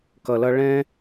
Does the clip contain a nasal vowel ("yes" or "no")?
yes